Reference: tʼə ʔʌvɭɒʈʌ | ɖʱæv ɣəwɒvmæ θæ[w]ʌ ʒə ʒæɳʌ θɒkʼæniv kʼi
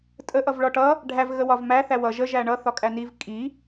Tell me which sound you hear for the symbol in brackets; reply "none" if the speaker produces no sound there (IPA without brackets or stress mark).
w